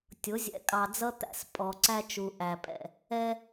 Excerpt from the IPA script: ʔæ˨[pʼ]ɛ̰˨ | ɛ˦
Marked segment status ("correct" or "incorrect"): correct